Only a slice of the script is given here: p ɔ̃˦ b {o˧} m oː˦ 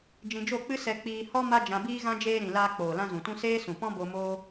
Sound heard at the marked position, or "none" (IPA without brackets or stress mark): o˧